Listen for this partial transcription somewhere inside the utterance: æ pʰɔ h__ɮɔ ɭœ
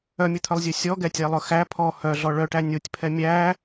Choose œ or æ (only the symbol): œ